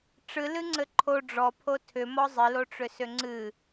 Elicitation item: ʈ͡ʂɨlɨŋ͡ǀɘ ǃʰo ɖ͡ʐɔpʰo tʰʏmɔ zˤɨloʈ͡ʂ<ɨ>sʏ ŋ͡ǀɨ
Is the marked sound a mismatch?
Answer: yes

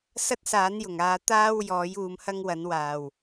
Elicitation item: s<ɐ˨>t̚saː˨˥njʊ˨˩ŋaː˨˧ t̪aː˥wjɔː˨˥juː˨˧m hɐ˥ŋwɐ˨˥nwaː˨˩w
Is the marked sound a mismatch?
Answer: yes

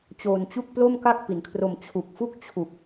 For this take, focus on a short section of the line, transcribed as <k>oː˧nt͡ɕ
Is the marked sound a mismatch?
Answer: yes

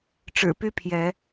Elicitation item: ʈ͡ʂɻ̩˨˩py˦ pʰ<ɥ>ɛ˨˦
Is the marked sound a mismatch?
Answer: yes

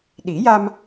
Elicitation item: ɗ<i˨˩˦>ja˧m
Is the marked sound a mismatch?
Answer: no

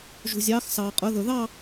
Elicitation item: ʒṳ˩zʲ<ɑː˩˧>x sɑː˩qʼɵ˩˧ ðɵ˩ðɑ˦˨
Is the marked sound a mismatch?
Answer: no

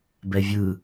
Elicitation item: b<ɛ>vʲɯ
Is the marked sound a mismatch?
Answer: no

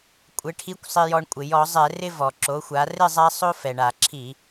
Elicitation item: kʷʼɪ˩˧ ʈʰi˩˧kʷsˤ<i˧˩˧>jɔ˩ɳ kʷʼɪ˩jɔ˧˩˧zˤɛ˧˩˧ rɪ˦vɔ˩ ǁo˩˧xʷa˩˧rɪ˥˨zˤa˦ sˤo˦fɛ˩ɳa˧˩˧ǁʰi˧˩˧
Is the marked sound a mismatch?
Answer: yes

